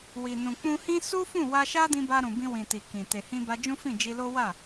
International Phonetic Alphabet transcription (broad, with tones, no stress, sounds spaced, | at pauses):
w i˨ n ũ˨ k͡p ũ˧ h ĩ˦ s u˦ f ũ˦˨ w a˧ ʃ a˦ d ĩ˧ b a˧ ɾ ũ˨ b ĩ˧ w ĩ˨ t i˨ k ĩ˨ t e˨ h ĩ˧ b a˧ d͡ʒ ũ˦ f ĩ˦˨ d͡ʒ i˧ l o˦ w a˦˨